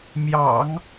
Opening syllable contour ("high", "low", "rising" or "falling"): low